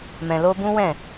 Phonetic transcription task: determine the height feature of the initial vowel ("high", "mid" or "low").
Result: mid